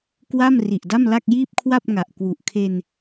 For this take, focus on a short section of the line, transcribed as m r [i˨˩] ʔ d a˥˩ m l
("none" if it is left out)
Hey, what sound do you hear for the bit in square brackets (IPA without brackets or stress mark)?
i˨˩